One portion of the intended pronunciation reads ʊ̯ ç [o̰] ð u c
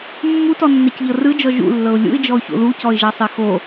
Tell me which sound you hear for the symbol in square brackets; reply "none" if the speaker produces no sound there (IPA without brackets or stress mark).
o̰